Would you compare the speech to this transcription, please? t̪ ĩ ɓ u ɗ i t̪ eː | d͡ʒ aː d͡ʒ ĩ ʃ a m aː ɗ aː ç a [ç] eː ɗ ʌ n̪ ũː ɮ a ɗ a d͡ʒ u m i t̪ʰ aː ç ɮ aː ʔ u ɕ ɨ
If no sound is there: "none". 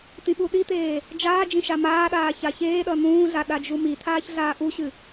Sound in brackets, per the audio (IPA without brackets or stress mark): ç